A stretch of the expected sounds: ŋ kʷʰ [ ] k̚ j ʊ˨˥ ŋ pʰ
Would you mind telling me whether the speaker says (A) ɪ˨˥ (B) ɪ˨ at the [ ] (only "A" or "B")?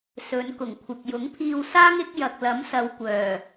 B